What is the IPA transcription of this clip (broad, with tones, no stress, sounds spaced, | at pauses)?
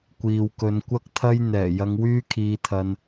kʷ iː˨ w k ɵ˨˧ n kʷ ɐ˥ k̚ t̪ʰ ɐ˥ j n̪ ɛː˨˩ j ɐ˧ ŋ w yː˥ kʰ iː˧ t̪ʰ ɐ˧ n